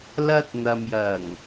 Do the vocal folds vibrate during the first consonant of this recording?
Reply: yes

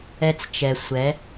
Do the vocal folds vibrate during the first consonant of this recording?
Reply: no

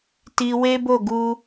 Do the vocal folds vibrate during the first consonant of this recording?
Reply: no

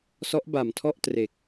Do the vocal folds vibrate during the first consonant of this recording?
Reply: no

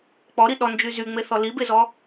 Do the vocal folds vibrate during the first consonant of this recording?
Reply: no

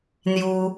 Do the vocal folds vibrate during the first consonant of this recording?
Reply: yes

